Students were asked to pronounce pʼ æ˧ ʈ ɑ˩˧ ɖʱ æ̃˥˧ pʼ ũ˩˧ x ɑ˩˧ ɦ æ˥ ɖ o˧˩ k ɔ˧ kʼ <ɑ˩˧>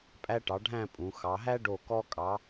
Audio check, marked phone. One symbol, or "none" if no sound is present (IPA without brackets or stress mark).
ɑ˩˧